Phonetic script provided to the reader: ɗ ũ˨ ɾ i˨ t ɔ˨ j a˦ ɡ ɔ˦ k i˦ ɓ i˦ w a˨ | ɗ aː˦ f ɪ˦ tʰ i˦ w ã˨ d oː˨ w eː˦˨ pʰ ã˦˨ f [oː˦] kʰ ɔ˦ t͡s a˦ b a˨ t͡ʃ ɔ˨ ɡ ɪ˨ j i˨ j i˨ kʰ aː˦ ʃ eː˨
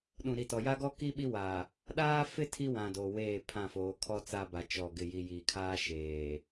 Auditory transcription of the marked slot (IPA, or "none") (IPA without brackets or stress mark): oː˨˦